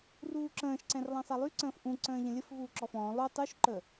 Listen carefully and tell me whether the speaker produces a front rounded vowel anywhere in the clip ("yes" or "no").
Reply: yes